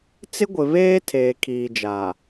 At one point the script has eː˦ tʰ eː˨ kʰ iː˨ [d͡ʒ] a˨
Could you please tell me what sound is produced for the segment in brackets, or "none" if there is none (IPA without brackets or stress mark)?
d͡ʒ